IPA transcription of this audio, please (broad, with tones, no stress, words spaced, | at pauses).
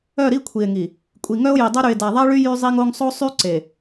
œ˦˨ɾi˦kʷʰi˨e̯ŋi˨ | kʷʼi˨ŋœ˦o̯ji˨dˤo˦ ɾy˨e̯da˨ðˤa˦ɭy˦ jy˦zˤi˦ŋo˦ŋ sˤo˦sˤy˦ ǀe˨